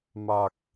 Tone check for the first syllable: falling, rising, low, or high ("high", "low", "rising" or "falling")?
low